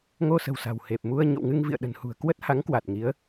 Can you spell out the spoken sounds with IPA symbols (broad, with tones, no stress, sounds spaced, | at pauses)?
ŋ o˧ s ə̤˨˩ w s a̤˨˩ w h e˨˩ p̚ m u˧ ə̯ ɲ o̰˧˨ w ŋ ɨ˧ ŋ v ḭ˧˨ ə̯ ɗ ə̤˨˩ n h ṳ˨˩ ə̯ k w ə˦˥ t̚ h a˨˦ ŋ k w a˨˩ t̚ ŋ i˨˦ ə̯